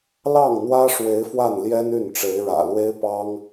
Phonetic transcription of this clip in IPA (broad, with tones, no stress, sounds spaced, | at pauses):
l ɑ˥˩ ŋ n̪ w ä˥ ʂ w e˧˥ ɪ̯ f w a˥˩ n l j ɛ˥ n y˥˩ n ʈ͡ʂ e˧˥ ɪ̯ ɻ ä̰˨˩ l w e˥ ɪ̯ p ɑ˥ ŋ